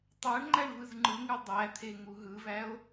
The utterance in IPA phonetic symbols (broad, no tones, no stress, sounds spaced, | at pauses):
tˤ æ ɳ ŋ͡ǃ æ ɳ v ɯ z ŋ͡ǃ ɯ ŋ ɯ dˤ æ t̪ʰ e ŋ u ɦ ɯ v æ o̯